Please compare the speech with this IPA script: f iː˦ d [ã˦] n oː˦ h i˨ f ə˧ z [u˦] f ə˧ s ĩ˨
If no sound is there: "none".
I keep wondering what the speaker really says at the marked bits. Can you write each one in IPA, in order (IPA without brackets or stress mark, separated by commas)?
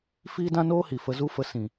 ã˦, u˦